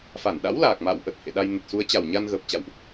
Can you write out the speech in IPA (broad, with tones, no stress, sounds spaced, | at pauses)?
f a˧˩ n ɗ a̰˧˥ w l aː˨˩ k̚ m a̰ː˧˨ w ʔ ə˨˩ t̚ h ḛ˧˨ ɗ a˧ j n ə˨˩ t̚ s u˨˦ ə̯ t͡ɕ a˨˩ w ɲ a˧ n ɣ əː˨˩ p̚ t͡ɕ a̰˧˨ w ʔ